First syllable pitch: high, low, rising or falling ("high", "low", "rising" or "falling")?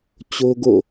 high